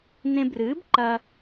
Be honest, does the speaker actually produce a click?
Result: yes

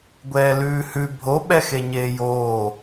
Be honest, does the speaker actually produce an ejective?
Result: no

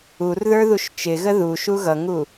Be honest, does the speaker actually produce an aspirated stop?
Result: no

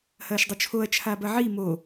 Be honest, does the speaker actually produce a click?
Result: no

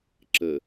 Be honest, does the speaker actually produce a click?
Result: yes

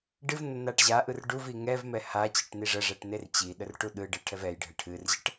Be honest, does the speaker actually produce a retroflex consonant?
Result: yes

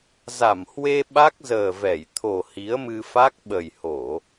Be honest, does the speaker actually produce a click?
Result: no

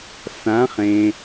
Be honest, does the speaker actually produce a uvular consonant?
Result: yes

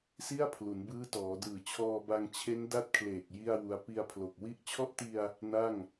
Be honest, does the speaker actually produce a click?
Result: no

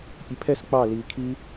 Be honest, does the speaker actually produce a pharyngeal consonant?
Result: no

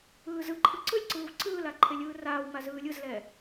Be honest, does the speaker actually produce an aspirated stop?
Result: yes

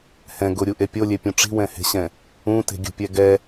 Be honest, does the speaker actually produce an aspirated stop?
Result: no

